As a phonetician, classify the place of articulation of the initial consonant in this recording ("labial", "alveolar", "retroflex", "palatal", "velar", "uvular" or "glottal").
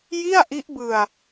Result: palatal